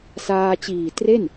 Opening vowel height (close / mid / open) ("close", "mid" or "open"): open